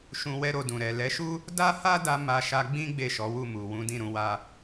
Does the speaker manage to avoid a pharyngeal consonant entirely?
yes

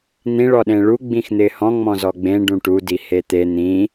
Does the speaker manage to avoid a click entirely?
yes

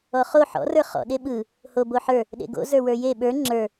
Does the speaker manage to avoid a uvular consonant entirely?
no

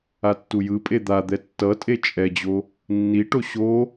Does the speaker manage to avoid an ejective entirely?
no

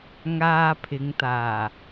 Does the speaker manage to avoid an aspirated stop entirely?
no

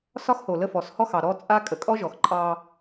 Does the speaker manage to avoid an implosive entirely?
yes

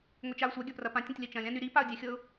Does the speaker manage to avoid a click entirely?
yes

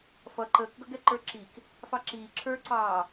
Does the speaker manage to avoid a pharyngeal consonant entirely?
yes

